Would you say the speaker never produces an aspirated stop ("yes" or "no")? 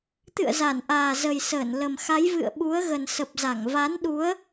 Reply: yes